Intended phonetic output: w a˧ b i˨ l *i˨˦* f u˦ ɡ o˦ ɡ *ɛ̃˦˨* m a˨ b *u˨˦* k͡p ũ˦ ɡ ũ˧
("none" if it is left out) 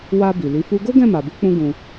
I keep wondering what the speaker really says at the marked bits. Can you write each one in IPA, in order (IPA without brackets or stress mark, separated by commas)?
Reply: i˨˦, ɛ̃˦˨, u˨˦